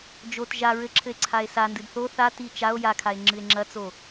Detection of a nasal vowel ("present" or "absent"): absent